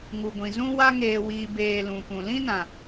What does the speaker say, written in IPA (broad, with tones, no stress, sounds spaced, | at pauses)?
ŋ u˨ ɡʷ ĩ˨ z ũ˦ w a˦ ŋ eː˨ w iː˨ b eː˧ l ũ˨ p ũ˨ l ĩ˦ n ã˨